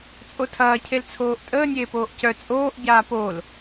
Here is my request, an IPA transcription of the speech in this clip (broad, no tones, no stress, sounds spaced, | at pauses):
t͡sʼ o tʰ ɐː cʰ e l t͡sʰ oː ʔ tʼ əː nʲ eː p oː ʔ c œ t͡sʼ oː ʔ ɟ aː p o l